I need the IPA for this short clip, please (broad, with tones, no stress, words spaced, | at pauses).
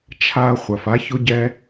t͡ʃʰa˧ɐ̯ χʷa˩fa˧ çʊ˧ɟɛ˧